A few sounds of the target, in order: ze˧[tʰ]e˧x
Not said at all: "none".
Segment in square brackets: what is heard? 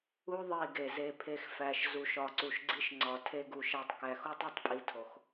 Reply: pʰ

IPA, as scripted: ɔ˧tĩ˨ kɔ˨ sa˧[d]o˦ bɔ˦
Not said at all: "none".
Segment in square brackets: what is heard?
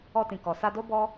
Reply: d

